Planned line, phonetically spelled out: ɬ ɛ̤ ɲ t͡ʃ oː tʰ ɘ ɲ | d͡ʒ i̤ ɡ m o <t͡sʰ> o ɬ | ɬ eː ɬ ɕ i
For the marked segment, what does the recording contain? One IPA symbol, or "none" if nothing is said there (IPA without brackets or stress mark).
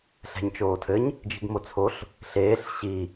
t͡sʰ